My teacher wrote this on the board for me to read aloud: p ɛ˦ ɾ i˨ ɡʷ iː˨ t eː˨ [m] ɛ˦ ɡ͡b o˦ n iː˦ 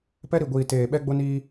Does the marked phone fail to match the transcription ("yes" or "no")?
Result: yes